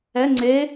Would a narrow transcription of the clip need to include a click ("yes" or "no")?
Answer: yes